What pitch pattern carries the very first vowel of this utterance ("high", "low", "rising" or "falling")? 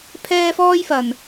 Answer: high